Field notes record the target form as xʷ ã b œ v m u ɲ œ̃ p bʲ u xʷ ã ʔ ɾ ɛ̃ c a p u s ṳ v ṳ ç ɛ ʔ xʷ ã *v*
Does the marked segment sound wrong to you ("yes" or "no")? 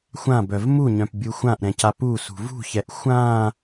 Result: yes